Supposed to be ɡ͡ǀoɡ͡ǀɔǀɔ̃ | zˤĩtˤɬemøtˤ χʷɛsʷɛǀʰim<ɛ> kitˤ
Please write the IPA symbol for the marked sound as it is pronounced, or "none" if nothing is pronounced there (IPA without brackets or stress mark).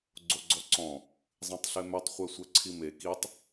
e